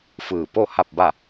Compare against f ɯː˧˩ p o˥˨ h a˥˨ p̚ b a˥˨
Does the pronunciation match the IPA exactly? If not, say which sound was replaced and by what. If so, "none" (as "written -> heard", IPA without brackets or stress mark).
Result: none